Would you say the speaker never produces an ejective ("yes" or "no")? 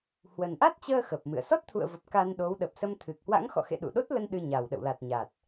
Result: yes